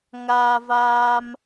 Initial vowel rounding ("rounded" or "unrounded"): unrounded